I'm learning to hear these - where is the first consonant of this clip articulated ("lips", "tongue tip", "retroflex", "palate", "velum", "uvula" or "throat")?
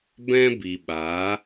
lips